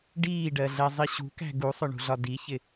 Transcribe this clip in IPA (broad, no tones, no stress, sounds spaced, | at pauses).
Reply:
ɖ iː ɖ ɜ ɮ ɛ zˤ i ɕ ṳ k æ̤ ɡ u sˤ ʊ ɳ ṳ ɮ ɒ d i ç ɪ